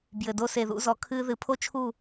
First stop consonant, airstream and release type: plain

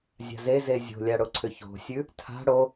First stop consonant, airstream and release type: click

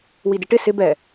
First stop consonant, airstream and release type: plain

